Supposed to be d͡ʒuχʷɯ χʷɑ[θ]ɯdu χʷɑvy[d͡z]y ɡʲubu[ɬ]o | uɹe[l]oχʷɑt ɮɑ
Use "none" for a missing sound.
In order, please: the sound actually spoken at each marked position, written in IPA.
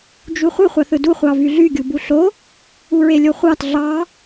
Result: θ, ɮ, ɬ, lʲ

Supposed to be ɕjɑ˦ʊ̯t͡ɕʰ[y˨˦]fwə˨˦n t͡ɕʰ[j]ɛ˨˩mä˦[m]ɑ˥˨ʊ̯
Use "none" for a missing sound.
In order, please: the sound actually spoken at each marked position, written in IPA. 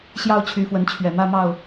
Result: y˨˦, ɥ, m

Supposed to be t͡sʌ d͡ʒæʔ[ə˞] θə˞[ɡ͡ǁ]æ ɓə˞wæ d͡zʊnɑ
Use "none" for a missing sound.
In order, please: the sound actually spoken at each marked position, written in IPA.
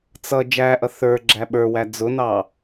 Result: ʌ, ɡ͡ǁ

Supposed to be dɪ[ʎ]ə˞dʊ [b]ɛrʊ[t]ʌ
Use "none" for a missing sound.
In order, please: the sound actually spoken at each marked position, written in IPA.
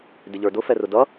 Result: ʎ, f, d

